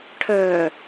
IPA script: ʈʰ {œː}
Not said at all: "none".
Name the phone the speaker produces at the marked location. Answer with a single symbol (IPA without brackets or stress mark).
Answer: œː